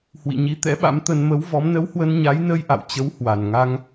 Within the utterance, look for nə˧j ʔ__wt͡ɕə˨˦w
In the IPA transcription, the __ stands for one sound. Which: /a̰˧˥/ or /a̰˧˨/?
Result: a̰˧˨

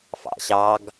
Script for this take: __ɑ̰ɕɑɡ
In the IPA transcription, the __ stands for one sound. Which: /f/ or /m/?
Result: f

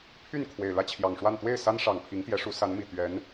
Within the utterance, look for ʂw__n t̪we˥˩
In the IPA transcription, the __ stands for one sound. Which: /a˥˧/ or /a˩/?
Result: a˥˧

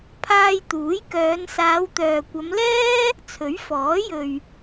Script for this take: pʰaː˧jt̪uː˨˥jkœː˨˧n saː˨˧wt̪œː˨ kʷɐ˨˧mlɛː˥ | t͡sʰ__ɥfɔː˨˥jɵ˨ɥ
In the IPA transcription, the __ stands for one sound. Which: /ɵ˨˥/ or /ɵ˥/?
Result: ɵ˨˥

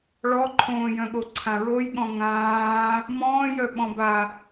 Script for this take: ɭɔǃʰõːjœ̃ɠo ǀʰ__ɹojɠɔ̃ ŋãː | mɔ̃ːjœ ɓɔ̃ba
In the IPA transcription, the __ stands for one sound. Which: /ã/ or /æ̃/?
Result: ã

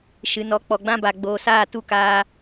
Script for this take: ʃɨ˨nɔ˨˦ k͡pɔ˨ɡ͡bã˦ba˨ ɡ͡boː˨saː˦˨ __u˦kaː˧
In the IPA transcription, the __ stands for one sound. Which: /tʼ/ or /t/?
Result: t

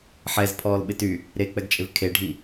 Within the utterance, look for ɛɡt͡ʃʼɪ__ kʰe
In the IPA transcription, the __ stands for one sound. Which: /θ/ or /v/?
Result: v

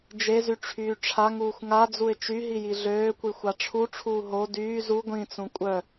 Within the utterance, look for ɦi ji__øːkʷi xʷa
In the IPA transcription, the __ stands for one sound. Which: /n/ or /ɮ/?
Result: ɮ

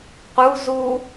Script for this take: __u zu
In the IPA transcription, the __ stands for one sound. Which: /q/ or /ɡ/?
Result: q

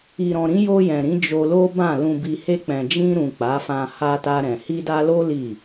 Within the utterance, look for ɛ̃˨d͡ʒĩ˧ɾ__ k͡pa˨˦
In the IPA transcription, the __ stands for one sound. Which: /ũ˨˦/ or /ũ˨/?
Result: ũ˨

